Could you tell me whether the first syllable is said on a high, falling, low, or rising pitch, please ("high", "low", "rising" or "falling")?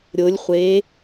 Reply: rising